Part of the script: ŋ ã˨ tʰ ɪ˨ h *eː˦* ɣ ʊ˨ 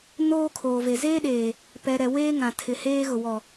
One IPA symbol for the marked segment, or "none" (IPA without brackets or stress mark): eː˦